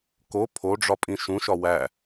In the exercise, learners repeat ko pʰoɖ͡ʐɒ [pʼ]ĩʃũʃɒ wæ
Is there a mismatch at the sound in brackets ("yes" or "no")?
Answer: no